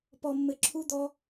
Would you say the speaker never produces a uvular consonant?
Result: yes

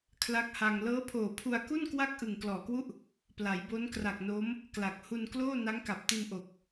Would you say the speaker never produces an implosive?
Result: yes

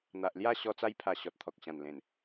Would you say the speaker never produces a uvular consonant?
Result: yes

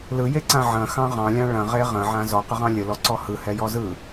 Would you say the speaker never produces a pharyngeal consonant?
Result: no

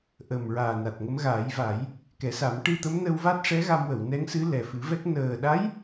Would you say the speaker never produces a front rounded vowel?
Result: yes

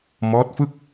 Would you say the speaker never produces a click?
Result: yes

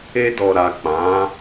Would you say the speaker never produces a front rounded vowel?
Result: yes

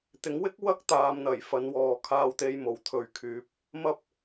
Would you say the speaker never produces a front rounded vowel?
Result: no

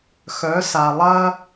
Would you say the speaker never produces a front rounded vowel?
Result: no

